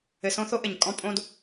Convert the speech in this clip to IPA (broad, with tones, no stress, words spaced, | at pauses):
ɘ˧sõ˦θo˦ʔɘ˨ɲ kʼɔ̃˦ pʼõ˦d